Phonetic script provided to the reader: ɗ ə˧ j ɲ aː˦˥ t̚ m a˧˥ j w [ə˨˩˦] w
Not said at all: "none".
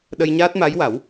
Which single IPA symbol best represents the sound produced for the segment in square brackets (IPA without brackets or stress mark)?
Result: a˨˩˦